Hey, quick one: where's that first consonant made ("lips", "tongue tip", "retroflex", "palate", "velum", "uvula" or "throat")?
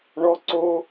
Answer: retroflex